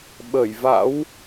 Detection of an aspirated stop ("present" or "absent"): absent